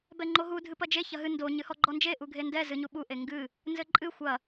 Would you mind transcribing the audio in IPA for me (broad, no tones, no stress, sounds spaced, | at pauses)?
b ɛ ŋ͡ǃ o ɦ u dʱ ɨ p ɐ d͡ʒ e ç ɐ ɦ ɨ n d o ɲ ɨ h ɔ ɡ͡ǃ ɔ n d͡ʒ e ʔ u ɡʱ e n d ɛ z ɨ ɲ u ɓ u ʔ e ŋ ɡ ɨ | n z ɘ ǃʼ ɨ xʷ ɐ